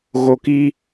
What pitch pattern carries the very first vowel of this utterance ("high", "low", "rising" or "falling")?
low